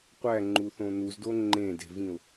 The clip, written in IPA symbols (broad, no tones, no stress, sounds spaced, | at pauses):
qʷ æ ŋ͡ǃ u θ õ n u z d o ŋ͡ǃ ẽ d e̤ v ĩ ʊ̯